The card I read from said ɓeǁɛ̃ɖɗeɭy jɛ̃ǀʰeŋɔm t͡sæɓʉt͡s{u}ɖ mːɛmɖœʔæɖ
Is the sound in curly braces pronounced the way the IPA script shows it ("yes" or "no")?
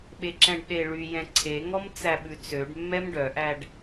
no